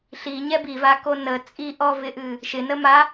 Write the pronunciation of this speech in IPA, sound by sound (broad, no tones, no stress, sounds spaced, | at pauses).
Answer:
ɬ i ɲ ɛ b i v a k o n ə t͡sʼ i ʔ ɔ v ɪ ʔ ɨ | ʃ ɪ n ə m a